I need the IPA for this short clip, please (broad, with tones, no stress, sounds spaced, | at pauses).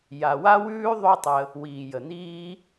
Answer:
j a˨ w a˦ w ʉː˦ ðˤ ʉ˦ tˤ ə˧ | w iː˨ j ə˨ n̪ iː˦